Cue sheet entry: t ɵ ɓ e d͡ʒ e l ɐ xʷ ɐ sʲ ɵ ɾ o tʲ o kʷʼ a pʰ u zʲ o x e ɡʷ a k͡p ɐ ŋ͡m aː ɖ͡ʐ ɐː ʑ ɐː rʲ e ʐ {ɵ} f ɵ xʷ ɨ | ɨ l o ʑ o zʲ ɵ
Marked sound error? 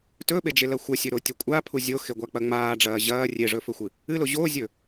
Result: no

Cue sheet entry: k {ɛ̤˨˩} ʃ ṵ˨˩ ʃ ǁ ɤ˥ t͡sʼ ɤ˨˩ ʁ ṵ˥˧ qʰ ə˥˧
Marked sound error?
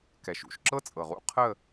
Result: yes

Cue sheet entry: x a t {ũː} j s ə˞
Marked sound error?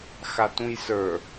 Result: yes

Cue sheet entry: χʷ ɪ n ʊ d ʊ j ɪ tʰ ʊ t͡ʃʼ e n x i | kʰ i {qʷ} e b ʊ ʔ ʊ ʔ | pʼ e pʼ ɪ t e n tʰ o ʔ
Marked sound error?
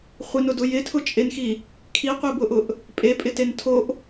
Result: no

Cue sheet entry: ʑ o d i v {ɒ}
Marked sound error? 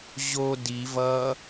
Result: yes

